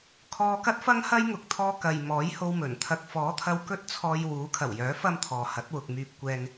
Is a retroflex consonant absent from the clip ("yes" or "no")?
yes